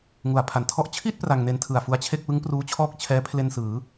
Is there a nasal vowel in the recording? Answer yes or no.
no